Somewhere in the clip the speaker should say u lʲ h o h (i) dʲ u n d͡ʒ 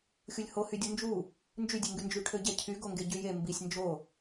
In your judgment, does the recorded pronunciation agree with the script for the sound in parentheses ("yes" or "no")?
no